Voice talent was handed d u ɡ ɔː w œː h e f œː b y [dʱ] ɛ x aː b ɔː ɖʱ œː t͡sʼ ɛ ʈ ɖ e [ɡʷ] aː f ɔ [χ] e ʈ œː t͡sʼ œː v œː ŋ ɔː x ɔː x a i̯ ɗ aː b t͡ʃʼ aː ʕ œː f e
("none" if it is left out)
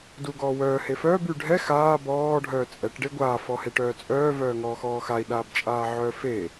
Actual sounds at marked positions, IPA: ɖʱ, ɡʷ, h

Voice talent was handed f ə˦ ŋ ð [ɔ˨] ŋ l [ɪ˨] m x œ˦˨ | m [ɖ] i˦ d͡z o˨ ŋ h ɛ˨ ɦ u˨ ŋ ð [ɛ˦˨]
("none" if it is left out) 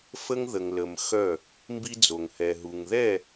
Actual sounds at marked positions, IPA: ə˨, ə˨, b, ɛ˦˨

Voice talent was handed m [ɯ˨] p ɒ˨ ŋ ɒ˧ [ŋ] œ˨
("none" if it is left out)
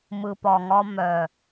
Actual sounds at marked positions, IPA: ɯ˨, m

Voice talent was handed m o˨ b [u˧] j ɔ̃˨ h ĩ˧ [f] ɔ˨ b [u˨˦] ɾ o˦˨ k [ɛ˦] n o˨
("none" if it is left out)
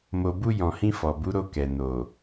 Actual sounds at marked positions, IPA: u˧, f, u˨˦, ɛ˨

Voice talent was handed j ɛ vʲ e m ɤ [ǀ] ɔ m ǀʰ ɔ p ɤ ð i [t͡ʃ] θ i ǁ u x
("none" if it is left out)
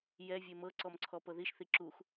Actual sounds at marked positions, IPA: ǀ, ʃ

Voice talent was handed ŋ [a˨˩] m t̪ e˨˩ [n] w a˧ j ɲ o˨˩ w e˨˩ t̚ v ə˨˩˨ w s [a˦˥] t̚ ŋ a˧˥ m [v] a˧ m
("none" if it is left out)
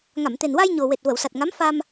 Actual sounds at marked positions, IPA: a˨˩˨, n, a˨˩, f

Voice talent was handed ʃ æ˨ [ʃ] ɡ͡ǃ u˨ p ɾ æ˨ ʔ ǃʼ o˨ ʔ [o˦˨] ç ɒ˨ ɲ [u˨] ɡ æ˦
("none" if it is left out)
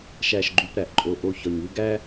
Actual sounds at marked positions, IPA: ʃ, o˦˨, u˦

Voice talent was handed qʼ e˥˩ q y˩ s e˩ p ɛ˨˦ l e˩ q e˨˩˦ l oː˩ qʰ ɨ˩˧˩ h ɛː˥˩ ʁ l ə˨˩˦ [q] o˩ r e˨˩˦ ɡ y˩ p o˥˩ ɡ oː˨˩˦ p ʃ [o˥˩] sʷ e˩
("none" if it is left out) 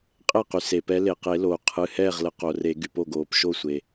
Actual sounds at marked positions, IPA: q, o˥˩

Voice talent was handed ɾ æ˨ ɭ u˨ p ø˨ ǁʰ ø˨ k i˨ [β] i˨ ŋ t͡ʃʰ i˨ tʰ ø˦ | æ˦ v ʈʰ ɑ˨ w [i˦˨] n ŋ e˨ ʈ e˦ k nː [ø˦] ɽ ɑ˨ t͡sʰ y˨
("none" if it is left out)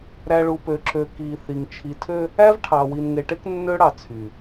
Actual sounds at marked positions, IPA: θ, i˨, ø˦

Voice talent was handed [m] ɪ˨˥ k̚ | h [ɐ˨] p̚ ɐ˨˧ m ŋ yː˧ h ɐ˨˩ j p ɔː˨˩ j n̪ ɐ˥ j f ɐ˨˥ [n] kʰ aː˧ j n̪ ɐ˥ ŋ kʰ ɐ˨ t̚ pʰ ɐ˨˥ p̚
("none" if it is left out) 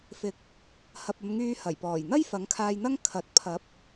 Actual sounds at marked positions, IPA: f, ɐ˨, ŋ

